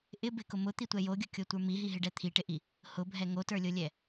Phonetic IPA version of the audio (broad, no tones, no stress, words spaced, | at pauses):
ʔɪ bɪkʊ mʊt̪itʷɛ joɡʲʊkʲotʷə˞ miɦiɦɪɖɛ t̪ʰiʈɪʔi | hʊbʱɛ ŋotə˞lʲolʲɛ